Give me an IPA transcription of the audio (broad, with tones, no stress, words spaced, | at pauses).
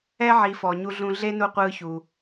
ɛ˦ʕi˨fɔ˩ ɲu˦ɮũ˦ ɮe˥nu˦ qʷɯː˦çu˨